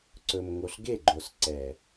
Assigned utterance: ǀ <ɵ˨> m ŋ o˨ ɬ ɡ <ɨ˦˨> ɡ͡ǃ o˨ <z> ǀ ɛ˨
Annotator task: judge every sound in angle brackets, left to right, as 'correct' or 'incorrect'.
correct, incorrect: e˦˨, incorrect: s

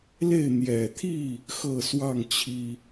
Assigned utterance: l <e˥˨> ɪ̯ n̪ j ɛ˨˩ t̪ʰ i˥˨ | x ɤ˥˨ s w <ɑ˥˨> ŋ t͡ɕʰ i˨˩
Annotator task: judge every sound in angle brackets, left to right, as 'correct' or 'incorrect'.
correct, correct

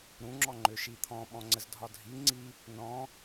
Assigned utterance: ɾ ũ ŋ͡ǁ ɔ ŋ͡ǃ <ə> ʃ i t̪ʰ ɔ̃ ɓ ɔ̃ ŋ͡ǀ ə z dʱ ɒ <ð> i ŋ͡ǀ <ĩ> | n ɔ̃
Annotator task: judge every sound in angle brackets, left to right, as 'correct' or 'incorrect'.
incorrect: ø, incorrect: dʱ, incorrect: i

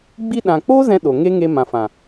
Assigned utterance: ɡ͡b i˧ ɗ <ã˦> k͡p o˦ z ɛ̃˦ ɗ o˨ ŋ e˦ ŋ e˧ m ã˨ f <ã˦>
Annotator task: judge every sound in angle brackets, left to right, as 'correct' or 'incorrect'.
incorrect: ã˨, incorrect: ã˨

